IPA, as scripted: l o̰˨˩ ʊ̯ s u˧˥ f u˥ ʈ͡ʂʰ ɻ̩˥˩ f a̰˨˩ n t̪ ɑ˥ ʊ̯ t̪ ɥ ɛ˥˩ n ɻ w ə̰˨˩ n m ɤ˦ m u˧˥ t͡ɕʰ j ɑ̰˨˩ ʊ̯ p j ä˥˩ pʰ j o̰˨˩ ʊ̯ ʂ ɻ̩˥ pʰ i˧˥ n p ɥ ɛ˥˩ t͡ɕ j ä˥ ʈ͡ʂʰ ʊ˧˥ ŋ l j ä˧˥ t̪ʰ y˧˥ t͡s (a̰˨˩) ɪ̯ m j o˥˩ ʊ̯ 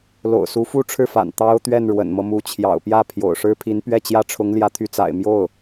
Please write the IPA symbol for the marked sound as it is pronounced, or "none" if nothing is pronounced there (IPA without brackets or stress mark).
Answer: a̰˨˩